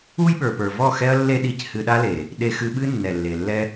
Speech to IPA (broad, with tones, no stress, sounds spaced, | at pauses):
u˦ j ɓ ə˞˨ p ə˞˨ v ɔ˦˨ x ɛ˦ ɐ̯ lː e˦ ɗ i˧ c h ɨ˧ ɗ a˦ l e˨ | ɗ e˧ x ɨ˧ ɓ ɨ˦ nː ɛ˨ lː e˨ lː ɛ˦